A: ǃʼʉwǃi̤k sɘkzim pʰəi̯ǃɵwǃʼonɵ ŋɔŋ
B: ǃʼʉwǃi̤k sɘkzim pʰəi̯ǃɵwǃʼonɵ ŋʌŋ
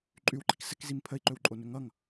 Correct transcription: B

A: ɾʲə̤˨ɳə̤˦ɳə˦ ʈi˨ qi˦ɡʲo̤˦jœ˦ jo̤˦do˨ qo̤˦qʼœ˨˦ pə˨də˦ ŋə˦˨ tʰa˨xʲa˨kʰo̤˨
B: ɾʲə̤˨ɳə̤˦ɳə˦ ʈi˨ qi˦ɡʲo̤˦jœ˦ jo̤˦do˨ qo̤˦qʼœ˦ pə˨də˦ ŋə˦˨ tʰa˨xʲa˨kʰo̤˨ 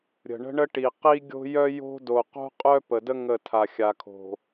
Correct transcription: B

